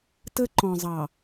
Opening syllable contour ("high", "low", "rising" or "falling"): high